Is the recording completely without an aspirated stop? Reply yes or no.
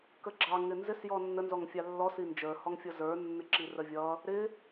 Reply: yes